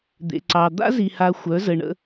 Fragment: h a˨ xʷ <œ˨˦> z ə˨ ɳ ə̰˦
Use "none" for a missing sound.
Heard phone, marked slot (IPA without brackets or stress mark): œ˨˦